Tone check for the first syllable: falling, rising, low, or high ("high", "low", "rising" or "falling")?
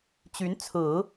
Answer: rising